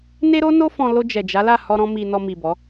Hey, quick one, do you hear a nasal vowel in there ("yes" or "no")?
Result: yes